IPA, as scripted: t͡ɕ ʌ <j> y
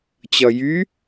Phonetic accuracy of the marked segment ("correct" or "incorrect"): correct